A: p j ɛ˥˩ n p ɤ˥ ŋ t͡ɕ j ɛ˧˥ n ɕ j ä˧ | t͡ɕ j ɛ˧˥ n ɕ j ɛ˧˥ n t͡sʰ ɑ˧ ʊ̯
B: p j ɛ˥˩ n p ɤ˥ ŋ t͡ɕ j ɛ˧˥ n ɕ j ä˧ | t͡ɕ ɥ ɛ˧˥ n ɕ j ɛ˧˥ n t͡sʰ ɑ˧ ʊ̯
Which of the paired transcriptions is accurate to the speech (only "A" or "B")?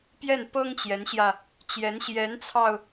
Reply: A